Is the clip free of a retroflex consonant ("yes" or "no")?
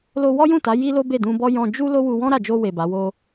yes